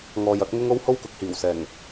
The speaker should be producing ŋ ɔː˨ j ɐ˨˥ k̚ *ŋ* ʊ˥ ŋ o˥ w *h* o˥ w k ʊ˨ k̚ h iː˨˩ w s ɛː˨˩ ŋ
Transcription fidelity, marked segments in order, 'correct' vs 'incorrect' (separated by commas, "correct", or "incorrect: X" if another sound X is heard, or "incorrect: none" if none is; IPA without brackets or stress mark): correct, correct